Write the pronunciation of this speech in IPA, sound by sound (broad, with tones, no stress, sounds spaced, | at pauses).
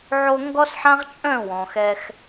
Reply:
ʕ o˧ ŋ ɡ ɔ˦ s ħ ã˦ ʁ t͡ʃʼ œ̃˦˨ w ɔ̃˨ x ɛ˧ x